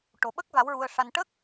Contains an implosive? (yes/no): yes